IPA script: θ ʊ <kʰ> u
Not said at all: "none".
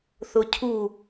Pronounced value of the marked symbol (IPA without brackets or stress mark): cʰ